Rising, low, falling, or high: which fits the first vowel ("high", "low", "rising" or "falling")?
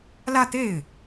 falling